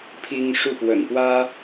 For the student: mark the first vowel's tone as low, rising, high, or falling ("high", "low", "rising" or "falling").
high